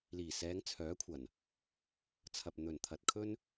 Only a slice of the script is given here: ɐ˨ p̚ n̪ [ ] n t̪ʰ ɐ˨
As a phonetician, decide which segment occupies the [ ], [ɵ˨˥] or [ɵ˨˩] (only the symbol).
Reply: ɵ˨˩